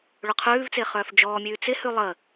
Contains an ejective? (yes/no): no